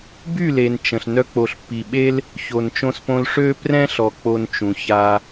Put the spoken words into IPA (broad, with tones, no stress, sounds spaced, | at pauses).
b y˦˨ l e˨ n t͡ʃ ə̃˨ ɬ n œ˧ k͡p o˨ ɬ pː i˨ ɓ e˦ l | ç o˨ n t͡ʃ õ˧ s p õ˧ l ʂ ø˦ p r ɛ̃˦ ɬ ɔ˨ k͡p o˧ n t͡ʃ ũ˨ ç a˧